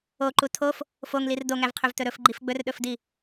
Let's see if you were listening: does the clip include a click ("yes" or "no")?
yes